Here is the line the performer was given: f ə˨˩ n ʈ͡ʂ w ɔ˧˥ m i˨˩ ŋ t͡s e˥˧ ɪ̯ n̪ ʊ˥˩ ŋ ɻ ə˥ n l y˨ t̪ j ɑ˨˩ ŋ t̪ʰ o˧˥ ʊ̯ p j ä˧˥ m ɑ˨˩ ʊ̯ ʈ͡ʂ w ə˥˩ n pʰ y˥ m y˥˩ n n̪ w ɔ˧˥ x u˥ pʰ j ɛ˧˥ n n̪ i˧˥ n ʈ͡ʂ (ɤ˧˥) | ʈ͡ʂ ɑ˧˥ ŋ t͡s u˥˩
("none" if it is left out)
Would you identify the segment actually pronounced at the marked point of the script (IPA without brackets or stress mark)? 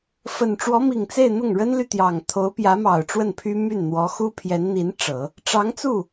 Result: ɤ˨˩˦